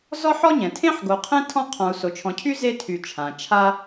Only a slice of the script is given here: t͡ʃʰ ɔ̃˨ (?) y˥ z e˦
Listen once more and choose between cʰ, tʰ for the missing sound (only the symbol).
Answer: cʰ